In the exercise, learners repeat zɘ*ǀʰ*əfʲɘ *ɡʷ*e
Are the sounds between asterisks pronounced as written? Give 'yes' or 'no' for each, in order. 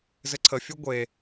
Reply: yes, yes

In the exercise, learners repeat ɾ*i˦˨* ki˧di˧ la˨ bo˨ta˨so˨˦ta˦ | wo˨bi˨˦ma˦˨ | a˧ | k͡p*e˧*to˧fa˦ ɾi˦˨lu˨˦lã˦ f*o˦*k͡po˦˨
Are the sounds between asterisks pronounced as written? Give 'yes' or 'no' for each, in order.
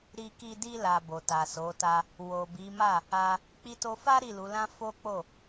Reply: no, no, yes

